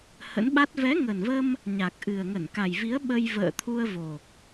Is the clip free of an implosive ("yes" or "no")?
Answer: no